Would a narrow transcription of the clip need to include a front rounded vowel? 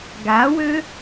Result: yes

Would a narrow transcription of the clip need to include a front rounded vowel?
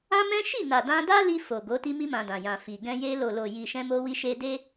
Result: no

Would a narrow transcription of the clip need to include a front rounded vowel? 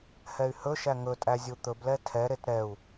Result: yes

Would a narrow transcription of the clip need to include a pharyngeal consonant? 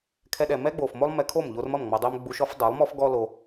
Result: no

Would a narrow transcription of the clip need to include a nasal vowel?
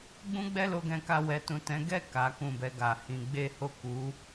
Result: yes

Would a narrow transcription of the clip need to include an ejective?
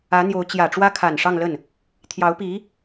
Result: no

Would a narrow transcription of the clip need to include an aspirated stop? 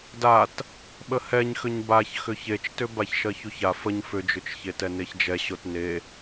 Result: no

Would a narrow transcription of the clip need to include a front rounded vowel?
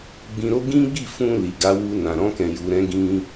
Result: no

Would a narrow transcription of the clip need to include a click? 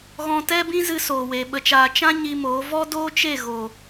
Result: no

